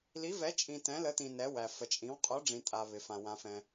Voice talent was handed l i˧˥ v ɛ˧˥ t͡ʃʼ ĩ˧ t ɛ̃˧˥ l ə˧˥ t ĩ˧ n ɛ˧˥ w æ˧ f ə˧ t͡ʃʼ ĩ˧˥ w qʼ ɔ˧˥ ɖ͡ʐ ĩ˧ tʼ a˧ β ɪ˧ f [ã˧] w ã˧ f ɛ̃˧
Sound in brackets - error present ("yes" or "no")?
no